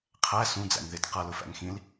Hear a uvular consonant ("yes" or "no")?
yes